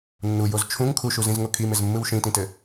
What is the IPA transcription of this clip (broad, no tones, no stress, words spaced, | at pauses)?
nːujoz t͡ʃʰũŋ kʰuʃuzĩzŋo kʰimɪzmːɯw ʃĩtĩtɘ